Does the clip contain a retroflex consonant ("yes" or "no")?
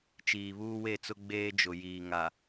no